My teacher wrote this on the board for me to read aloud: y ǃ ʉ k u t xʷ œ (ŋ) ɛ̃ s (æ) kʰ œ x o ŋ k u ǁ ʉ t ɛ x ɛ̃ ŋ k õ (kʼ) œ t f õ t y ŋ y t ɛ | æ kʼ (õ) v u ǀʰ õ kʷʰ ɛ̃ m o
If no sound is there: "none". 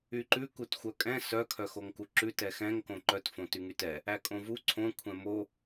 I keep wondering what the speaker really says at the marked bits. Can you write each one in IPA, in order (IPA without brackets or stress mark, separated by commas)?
kʼ, œ, ǃ, õ